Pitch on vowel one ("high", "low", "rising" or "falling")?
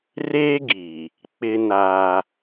high